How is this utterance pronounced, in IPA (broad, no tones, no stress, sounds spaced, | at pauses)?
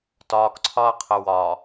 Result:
t ɒː k ǀʰ ɒ ɐ̯ qʰ ɪ w ɒ